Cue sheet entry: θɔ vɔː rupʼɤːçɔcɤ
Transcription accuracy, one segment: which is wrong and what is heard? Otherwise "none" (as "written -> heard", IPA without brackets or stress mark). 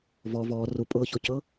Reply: θ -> v